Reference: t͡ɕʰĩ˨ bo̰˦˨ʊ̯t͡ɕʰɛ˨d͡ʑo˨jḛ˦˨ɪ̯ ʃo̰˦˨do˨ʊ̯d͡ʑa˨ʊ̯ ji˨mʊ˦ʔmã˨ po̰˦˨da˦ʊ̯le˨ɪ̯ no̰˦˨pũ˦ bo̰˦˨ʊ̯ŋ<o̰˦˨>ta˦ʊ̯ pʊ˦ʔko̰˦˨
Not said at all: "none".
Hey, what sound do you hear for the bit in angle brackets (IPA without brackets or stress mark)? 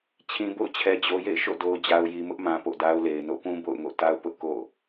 o̰˦˨